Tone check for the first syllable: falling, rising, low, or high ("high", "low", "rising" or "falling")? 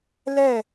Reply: falling